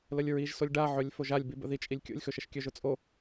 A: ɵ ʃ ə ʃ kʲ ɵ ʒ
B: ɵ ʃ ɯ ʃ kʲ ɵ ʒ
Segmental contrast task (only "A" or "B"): A